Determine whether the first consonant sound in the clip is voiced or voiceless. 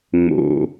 voiced